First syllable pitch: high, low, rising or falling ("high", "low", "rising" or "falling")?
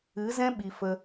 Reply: rising